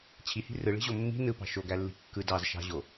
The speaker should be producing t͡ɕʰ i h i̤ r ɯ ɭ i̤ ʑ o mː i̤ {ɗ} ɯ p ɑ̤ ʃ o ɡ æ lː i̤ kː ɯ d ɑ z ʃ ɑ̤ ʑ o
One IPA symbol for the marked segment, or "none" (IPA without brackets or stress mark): n